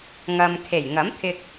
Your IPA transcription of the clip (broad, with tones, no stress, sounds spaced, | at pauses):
ŋ ɐ˧ m kʰ e˨˩ j ŋ ɐ˨˥ m t̪ʰ ɪ˧ k̚